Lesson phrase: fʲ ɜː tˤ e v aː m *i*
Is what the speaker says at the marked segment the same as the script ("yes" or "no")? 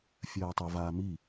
yes